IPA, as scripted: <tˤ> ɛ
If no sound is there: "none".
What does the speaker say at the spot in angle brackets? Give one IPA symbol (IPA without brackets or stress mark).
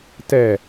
t